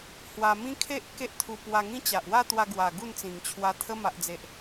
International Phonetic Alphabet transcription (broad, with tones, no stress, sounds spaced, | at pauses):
h w a˧ m ĩ˦ kʰ e˦ ʔ k e˦ ʔ t̪ʰ u˧ p w a˧ ŋ ĩ˦ t͡ɕ a˨ ʔ w a˥˧ t̪ w a˧ ɡ w a˨˩ ɡ u˥˧ n t͡s ĩ˨˩ ŋ t͡ɕʰ w a˧ t̪ʰ ə˧ m a˨ ʔ d͡z e˨ ʔ